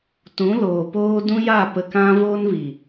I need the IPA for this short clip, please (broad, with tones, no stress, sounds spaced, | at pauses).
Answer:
t ũ˨˦ l oː˨ p oː˦ d ũ˦ j a˦˨ p ə˧ k ã˦ v o˦ n v i˨